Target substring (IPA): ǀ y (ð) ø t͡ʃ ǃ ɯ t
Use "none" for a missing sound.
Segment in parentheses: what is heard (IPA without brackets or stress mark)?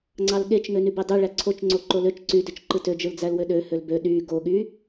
d